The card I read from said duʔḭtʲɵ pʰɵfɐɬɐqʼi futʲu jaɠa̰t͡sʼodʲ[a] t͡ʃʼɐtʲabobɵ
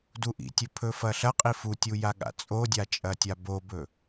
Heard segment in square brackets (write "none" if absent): a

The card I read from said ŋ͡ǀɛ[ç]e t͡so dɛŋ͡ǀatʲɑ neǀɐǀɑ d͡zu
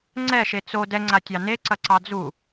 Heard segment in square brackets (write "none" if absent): ʃ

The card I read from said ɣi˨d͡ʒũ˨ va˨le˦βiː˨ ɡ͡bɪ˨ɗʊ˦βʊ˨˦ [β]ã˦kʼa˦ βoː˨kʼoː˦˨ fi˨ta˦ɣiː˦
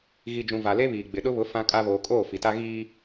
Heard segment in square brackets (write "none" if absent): f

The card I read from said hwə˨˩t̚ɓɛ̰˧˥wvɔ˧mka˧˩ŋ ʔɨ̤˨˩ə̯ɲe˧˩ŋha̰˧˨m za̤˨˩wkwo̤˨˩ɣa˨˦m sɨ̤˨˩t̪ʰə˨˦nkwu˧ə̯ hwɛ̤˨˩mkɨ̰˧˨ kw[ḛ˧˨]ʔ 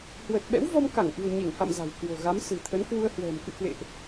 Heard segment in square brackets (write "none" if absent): ḛ˧˨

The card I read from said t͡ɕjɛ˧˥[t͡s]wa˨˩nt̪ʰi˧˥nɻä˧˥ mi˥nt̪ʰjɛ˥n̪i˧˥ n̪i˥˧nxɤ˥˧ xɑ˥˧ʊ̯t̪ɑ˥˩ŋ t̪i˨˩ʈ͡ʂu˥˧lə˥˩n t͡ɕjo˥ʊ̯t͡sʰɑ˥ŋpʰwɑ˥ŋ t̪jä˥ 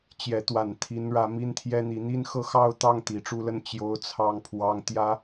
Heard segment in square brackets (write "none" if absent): t̪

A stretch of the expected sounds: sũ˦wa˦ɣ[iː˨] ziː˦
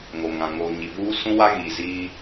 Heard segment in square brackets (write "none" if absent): iː˨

